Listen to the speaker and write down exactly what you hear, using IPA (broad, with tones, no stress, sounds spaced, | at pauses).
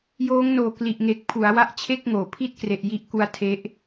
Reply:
j oː˦˥ ŋ n oː˨˩ k l i˨˩ ʔ ŋ e˨˩ k̚ pʰ u˩˦ a̯ w a˥˩ ʔ t͡ɕʰ e˥˩ k̚ ŋ oː˩˦ pʰ i˥˩ t̚ k r e˨˩ ʔ j i˦˥ ʔ k u˧ a̯ tʰ e˦˥ ʔ